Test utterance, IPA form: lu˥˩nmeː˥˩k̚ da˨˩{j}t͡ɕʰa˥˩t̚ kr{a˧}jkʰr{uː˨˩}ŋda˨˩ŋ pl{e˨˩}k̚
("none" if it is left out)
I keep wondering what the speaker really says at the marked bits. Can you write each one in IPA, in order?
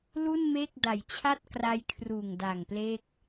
j, a˧, uː˨˩, e˥˩

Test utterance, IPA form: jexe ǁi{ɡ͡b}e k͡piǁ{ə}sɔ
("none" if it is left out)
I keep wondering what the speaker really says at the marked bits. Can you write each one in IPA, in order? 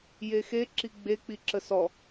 ɡ͡b, ə

